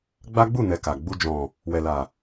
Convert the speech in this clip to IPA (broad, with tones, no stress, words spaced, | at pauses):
ɡ͡ba˦ɡ͡bu˦˨nɛ˨ ka˨ ɡ͡bu˧d͡ʒɔ̃˨ | wɛ˨la˨